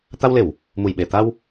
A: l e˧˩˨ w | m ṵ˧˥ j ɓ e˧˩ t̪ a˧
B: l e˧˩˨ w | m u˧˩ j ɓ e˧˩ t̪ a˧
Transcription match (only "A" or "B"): B